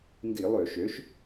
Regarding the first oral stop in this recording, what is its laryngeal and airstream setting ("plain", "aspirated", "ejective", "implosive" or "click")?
plain